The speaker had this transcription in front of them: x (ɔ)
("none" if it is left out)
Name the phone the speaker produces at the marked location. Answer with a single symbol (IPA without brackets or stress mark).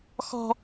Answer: ɔ̤